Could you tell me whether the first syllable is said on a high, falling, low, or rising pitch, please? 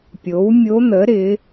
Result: rising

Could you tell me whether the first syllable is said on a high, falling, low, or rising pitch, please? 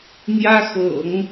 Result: high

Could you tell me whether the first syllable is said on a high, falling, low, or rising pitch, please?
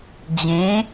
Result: rising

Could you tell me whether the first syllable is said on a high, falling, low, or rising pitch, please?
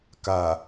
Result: low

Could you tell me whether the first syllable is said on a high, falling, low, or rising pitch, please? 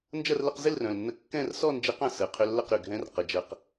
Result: falling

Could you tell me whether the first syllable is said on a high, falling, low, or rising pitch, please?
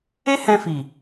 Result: high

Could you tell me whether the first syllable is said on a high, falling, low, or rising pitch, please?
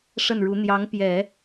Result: falling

